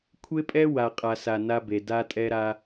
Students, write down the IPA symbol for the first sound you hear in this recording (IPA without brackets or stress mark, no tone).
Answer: kʷʰ